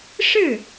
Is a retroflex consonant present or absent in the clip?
present